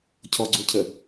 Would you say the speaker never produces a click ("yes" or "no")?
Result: no